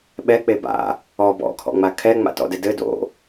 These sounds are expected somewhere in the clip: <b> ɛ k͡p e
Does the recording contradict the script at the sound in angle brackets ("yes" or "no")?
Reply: yes